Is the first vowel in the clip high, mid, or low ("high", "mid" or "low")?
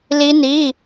high